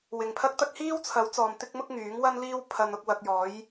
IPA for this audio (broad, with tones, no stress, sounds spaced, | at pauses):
w ɪ˨ ŋ pʰ ɐ˥ k̚ t̪ ɐ˥ k̚ h iː˥ w t͡sʰ ɐ˨˥ w t͡s ɔː˨ m t̪ ɪ˥ k̚ m ʊ˥ k̚ ŋ yː˨˥ ŋ w ɐ˥ n l iː˥ w pʰ ɐ˧ n ʊ˧ k̚ w ɐ˧ k̚ j ɔː˨˥ j